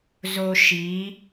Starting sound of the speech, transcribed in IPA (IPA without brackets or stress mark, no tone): z